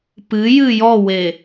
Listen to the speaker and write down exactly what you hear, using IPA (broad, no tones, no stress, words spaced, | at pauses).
pɨjɨ jɔwe